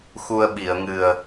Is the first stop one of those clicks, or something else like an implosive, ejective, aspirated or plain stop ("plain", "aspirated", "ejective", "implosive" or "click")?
implosive